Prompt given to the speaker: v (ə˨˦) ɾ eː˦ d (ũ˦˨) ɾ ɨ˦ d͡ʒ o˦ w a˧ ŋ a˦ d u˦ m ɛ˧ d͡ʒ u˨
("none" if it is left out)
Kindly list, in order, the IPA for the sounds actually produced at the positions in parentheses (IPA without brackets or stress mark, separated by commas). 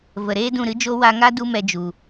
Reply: ə˨, ũ˦˨